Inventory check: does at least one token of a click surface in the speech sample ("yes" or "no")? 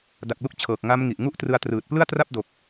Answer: no